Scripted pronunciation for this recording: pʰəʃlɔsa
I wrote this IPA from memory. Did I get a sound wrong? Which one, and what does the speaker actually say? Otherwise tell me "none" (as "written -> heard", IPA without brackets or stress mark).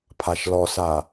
ə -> a